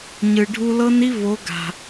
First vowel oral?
yes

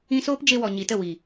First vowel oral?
no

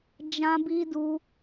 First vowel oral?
no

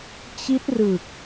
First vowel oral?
yes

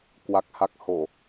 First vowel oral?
yes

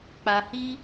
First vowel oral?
yes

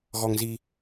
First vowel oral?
yes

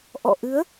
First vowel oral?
yes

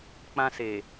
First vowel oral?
no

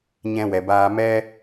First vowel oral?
no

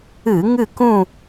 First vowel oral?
yes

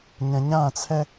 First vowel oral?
no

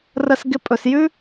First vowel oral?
yes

